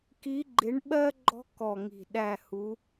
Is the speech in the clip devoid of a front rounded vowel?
yes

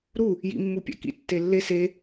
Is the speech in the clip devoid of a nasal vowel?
yes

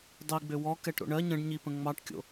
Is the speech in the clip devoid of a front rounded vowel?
no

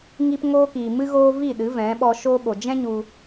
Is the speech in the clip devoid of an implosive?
no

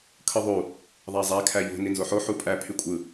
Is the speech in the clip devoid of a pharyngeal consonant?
no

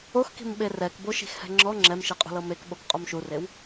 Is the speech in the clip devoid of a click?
no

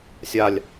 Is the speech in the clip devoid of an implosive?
yes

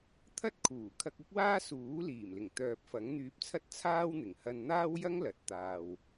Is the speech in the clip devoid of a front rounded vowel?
no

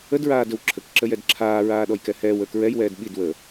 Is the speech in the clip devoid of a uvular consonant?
yes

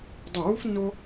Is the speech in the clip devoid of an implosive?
yes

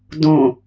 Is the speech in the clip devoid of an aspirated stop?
yes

